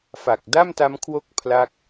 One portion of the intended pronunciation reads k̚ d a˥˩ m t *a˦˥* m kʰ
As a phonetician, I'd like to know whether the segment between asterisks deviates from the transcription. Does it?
no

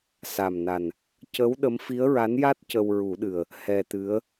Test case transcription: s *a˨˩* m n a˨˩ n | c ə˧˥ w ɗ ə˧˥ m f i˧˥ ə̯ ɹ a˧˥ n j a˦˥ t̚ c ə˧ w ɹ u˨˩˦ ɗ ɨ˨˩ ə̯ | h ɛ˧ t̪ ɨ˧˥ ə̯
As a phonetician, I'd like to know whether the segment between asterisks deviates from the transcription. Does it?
no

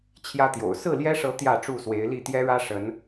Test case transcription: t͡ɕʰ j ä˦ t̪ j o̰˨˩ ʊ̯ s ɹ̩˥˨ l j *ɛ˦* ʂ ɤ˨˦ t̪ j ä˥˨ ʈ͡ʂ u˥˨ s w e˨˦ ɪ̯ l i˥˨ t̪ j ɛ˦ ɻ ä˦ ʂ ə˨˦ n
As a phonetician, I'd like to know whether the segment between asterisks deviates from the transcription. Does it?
no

